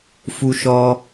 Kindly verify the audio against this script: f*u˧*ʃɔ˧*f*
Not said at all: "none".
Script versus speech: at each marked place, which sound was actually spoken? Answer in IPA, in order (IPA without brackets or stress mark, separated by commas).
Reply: u˧, none